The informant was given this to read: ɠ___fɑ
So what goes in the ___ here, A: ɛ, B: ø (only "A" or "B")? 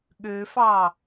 B